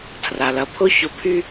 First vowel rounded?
no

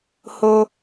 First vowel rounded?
yes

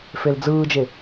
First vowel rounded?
no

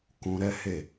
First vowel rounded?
yes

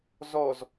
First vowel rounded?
yes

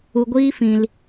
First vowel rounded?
yes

